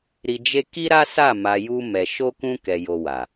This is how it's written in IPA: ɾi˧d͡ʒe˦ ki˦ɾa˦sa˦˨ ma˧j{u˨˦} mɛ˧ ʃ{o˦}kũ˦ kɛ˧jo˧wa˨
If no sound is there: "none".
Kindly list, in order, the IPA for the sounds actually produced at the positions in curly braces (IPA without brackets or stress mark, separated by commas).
u˦, o˦